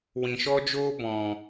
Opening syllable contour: low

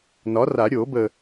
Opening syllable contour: rising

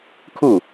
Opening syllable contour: falling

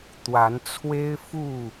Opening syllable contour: rising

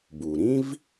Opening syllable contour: low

